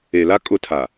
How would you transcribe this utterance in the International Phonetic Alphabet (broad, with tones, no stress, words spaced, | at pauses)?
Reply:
e˨la˦ kʼʊ˦tʰa˨